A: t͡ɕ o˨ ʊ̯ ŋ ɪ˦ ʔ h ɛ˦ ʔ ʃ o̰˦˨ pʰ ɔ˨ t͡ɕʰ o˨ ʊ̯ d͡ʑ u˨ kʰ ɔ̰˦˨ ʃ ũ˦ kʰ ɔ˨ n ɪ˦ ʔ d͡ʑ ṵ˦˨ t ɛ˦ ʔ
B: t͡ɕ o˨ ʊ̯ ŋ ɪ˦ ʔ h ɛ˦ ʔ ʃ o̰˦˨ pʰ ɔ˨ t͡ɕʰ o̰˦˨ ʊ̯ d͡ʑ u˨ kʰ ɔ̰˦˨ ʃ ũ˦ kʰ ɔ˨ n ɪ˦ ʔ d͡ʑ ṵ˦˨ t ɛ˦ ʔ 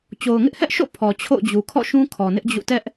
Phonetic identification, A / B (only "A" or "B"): B